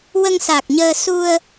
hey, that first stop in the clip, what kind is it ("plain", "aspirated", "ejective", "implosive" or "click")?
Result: plain